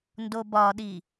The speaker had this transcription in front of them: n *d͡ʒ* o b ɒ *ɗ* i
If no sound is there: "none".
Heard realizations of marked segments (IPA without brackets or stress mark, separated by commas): d, ɗ